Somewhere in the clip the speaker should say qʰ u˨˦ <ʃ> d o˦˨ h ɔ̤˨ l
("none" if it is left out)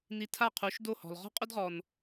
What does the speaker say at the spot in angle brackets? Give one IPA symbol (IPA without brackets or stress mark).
ʃ